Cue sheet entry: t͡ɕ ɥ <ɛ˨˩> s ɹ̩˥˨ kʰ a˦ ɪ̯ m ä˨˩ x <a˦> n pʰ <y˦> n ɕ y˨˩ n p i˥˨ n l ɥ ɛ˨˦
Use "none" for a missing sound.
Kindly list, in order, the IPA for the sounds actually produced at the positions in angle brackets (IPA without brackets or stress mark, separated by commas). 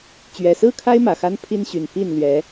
ɛ˨˩, a˦, i˦